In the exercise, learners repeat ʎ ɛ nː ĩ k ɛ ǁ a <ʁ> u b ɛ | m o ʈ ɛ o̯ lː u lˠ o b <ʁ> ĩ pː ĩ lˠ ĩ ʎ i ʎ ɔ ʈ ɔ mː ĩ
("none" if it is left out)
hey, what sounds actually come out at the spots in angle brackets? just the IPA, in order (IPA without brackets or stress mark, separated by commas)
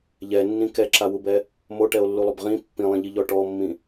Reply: w, ʁ